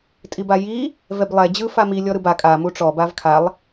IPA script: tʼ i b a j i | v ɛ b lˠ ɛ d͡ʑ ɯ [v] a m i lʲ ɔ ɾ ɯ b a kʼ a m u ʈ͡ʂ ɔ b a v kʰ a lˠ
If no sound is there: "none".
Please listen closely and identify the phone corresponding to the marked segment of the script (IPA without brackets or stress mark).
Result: f